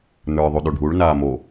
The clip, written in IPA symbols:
n ə˞ ðˤ u ɗ o ɖʱ u ɭ n aː m o

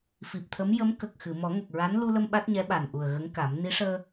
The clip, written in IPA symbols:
f i˨˩ p̚ t̪ʰ ə˧˥ m j ə˧˥ m k ə˨˩ k̚ x ɨ˨˩˨ m ɔ˨˩˦ ŋ ə˨˩ k̚ ɹ a˧˥ n l u˧ l ə˧ m ɓ a˦˥ t̚ ɲ ɛ˧˥ ɓ a˨˩ n ʔ u˨˩ ə̯ ɣ ə˧˥ ŋ k a˨˩˦ m n i˧˥ ʂ əː˧

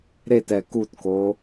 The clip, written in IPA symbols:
ɾ e t ɛ k u t k o

